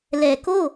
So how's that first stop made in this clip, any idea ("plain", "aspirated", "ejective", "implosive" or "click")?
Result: plain